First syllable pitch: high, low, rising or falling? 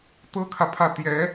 high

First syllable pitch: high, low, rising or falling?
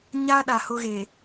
high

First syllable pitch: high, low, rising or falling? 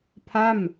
falling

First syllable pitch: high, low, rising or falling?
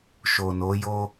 low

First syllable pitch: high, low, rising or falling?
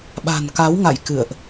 low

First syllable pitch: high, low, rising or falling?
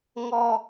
low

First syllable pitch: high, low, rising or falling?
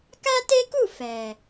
high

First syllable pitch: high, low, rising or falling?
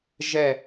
falling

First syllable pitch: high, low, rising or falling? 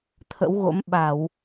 rising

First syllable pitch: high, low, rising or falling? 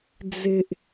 low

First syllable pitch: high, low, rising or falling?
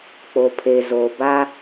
low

